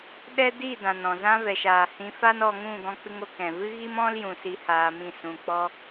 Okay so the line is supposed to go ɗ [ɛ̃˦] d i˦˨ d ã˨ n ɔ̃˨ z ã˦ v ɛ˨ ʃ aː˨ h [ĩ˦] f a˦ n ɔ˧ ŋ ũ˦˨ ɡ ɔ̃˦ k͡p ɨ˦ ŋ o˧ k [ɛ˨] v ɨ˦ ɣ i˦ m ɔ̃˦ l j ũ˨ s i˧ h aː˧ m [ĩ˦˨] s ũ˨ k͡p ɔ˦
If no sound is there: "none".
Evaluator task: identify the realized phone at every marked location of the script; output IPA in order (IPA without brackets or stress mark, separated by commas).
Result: ɛ˦, ĩ˧, ɛ̃˨, ĩ˦˨